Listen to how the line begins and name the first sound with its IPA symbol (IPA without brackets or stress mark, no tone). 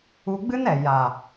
u